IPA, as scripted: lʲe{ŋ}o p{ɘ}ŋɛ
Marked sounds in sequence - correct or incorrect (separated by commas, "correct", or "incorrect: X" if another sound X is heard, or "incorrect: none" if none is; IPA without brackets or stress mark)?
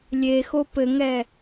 incorrect: x, correct